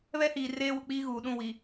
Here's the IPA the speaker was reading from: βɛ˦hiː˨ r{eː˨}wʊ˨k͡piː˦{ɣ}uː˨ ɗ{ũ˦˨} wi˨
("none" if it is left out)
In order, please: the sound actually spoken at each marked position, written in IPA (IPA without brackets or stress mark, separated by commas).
eː˦, ɣ, ũ˦˨